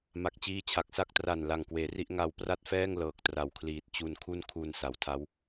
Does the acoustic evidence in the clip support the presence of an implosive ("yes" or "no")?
no